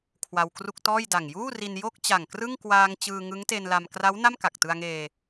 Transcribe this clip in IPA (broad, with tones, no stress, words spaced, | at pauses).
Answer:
kʰwa˧wkru˥˩k̚ tɔː˥˩jda˨˩ŋ juː˥˩ri˧n jo˥˩k̚t͡ɕa˨˩ŋkrɯ˥˩ŋ kwaː˧ŋ t͡ɕɯː˧ŋɯ˦˥ŋte˧nla˧m kra˦˥w na˥˩mka˨˩k̚tɯ˧a̯ŋeː˧